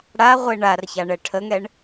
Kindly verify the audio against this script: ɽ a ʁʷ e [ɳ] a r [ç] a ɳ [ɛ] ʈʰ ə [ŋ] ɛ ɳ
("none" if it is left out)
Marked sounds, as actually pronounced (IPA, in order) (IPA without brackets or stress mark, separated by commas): ɳ, ç, ɛ, ŋ